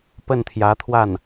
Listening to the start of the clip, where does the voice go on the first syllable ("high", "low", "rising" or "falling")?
falling